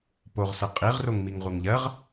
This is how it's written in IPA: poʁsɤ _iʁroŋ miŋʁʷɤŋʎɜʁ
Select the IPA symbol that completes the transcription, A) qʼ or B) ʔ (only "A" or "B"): A